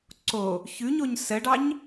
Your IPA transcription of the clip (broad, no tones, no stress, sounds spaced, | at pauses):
ǀ o | ç ʉ ɲ o ɲ s ə ɖ ɑ ɲ